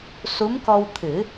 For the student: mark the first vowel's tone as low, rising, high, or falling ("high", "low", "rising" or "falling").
rising